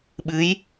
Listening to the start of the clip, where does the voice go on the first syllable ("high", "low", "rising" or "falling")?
rising